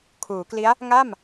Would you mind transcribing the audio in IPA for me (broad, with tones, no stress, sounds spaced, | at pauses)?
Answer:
kʰ uː˩˦ k l i˦˥ a̯ | ŋ a˥˩ m